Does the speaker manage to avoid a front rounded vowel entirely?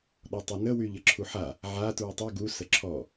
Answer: no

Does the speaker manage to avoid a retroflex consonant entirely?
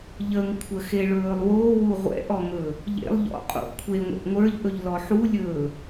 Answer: no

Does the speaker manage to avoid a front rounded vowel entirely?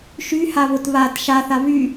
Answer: no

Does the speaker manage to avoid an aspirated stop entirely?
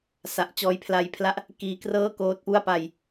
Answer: no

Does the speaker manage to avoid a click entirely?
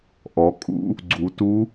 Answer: no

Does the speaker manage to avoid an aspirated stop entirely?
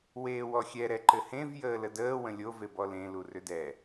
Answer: yes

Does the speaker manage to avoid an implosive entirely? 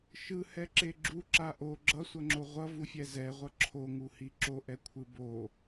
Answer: yes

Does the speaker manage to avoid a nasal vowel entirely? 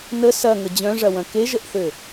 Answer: no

